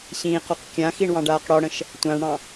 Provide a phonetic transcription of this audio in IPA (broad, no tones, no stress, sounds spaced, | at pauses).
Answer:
ɕ ĩː q ɔ q kʲ ã x i ɳ w ɑ̃ ɖ aː q ɽ ɔ ɽ ə̃ ʃ | tʷ ã ɳ ɽ ɑ̃